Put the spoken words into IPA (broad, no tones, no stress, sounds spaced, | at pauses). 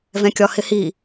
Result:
v ɛ̃ kʲ ɒ h ɪ h i